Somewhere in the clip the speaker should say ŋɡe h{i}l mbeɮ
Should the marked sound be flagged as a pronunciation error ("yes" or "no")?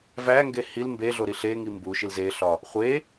no